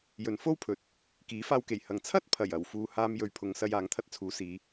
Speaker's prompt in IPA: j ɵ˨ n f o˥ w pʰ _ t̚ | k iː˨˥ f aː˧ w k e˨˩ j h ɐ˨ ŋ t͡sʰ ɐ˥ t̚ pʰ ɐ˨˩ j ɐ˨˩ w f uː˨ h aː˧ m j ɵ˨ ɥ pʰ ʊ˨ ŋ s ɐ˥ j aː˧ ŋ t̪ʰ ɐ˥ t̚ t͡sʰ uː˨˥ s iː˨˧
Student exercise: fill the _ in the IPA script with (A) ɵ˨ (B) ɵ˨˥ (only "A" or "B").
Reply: B